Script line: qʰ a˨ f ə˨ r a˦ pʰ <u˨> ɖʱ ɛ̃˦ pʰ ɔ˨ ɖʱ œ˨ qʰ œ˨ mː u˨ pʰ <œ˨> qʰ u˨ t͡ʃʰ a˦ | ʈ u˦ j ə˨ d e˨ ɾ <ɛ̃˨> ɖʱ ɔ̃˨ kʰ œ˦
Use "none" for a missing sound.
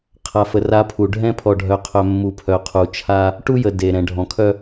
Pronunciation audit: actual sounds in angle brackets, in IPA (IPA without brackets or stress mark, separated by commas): u˨, œ˨, ɛ̃˨